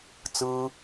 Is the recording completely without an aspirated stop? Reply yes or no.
yes